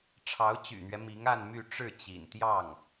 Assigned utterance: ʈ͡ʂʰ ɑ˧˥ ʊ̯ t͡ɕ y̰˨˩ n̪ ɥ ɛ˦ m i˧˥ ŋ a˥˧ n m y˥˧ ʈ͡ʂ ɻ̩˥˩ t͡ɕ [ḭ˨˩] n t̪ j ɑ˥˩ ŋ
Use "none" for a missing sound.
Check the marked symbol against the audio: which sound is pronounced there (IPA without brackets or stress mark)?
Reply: ḭ˨˩